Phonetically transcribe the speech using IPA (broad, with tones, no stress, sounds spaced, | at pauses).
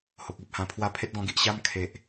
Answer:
h o˨ k̚ e˨ p̚ h ã˧ pʰ w a˧ pʰ e˦ t̚ ɡ ɔ̃˧ ɡ i˨ ʔ ɕ a˦ m kʰ e˨ ʔ